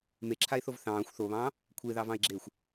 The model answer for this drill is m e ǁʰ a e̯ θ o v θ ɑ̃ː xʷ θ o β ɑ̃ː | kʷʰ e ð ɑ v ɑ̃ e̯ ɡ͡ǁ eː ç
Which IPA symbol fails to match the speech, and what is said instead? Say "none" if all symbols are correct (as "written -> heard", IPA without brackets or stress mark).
ç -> xʷ